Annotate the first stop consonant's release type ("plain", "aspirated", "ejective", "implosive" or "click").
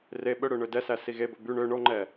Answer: implosive